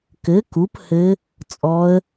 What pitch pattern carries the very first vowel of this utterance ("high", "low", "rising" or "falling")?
rising